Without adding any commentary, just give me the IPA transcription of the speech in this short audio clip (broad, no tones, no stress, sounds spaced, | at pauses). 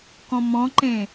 k ɔ̃ m ɔ̃ ǃ ẽ